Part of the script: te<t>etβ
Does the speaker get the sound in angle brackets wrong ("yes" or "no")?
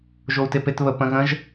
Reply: yes